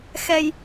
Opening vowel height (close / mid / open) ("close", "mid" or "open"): mid